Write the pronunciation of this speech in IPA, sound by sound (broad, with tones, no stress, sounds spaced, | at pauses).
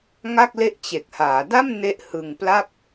ŋ a˥˩ k̚ l e˥˩ ʔ t͡ɕ e˨˩ k̚ h aː˩˦ d a˥˩ m n e˦˥ ʔ h ɯ˧ ŋ p l a˥˩ p̚